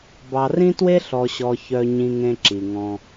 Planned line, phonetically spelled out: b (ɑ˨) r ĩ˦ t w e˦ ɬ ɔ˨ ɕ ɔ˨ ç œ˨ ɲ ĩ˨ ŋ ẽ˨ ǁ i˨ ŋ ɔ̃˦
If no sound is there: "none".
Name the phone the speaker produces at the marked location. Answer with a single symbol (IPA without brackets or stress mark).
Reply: ɑ˨